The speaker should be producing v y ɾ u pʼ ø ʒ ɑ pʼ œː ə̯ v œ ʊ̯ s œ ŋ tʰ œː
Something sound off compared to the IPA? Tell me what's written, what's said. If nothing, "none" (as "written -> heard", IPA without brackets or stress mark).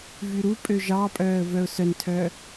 ŋ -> n